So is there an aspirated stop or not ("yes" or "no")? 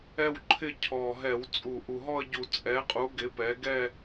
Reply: yes